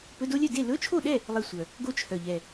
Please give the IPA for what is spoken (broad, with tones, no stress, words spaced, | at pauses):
pɵ˧˥˧do˥lʲœ˥˨ de˥˨ lɵ˧˥˧t͡ʃʰo˥˨ɗɛ˥˨ | lˠe˥˨ sʷœ˨˩ | ɡo˥t͡ʃʰœ˨˩ʎɛ˨˩